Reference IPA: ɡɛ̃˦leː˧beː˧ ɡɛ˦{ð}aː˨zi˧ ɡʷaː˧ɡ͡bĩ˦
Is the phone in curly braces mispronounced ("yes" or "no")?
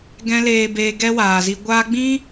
yes